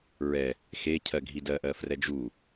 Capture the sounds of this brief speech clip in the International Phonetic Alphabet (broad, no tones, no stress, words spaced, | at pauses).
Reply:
ɹɛ | xe cʰɜɡʱidɜʔɜ frɛd͡ʒu